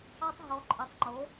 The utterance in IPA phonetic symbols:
a˧ tˤ ɦ ɔ˩˧ ǃʼ ə˩˧ tˤ ŋ͡ǃ o˩˧

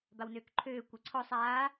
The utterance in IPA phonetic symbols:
b a w n øː k ǃʰ øː kʷ e ǀʰ ɔ sˤ aː

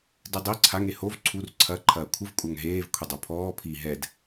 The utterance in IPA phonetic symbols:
d ɨ dˤ i ǀʰ a ŋ e h o v ǀʰ u r ǀʰ ɐ ǃʰ ɐː kʷʰ ɨ v kʷʼ a ŋ ɦ eː v kʷʰ i dˤ o pʰ ɔː pʰ i ɦ ɛ d

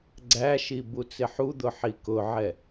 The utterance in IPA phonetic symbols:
ɡ͡ǀ æ ʃ i b u t͡s ɪ ħ u d̪ ʊ ħ i k ʊ ʕ ɛ

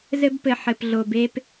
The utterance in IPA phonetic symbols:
z ɘ˦ b p ɘ˨ ħ ɘ˨ p ɮ o˨ b e˦ p

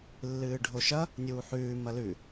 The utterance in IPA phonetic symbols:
lː ɨː ɖʱ o ʃ ɐ | nʲ uː ħ ʉː m ɐ l ʉ

